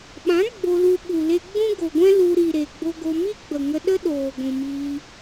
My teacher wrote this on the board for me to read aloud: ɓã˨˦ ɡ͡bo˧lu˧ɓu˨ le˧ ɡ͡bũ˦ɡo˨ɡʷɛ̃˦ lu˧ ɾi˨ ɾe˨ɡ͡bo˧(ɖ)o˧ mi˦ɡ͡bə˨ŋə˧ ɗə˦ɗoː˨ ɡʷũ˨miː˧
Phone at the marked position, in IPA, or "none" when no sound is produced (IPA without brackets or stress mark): ɡ